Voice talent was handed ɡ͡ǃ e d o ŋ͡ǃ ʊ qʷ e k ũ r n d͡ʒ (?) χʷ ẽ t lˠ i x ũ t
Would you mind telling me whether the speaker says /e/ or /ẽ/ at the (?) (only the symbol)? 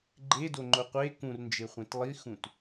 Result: e